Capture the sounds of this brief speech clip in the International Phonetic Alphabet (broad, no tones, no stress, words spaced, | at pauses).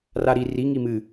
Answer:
raɾi riŋi mɨ